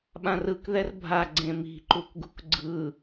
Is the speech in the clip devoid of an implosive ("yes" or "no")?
no